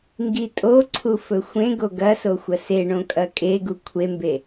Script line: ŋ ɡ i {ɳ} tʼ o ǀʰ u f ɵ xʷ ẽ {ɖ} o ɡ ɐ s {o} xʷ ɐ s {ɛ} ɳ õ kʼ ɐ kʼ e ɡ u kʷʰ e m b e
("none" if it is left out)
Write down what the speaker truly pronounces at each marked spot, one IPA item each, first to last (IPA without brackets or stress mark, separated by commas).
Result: none, ɡ, o, e